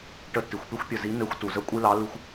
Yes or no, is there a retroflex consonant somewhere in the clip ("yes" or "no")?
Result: yes